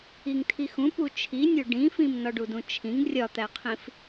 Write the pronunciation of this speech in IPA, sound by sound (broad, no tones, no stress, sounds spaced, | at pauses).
i ŋ tʰ i x ũ p u t͡ʃʰ i nʲ o ɖ ĩ f ĩ m n ɒ ɖ u d ũ t͡ʃʰ ĩ ŋ rʲ ɒ t̪ æ qʰ ĩ f